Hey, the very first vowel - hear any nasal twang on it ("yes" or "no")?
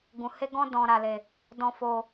yes